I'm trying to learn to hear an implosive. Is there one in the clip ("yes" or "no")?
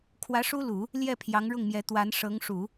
no